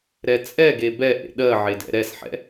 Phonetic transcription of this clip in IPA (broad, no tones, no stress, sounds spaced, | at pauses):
ɾ ɛ t͡sʼ ɛ ɡ e b ɛ ʔ ḛ ɗ ɜ ʕ e d ɛ̰ ɾ ɛ s ħ ɛ̰